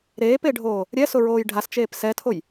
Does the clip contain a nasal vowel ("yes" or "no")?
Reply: no